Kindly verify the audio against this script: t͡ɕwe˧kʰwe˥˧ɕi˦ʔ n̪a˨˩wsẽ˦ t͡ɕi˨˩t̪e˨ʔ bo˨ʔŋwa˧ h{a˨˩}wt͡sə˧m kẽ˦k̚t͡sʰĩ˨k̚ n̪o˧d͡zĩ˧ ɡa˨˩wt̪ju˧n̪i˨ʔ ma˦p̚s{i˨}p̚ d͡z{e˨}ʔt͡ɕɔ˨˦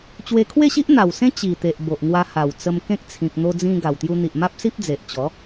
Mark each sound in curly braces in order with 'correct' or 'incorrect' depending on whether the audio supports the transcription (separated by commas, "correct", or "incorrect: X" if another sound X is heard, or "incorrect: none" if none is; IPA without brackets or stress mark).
correct, incorrect: i˦, correct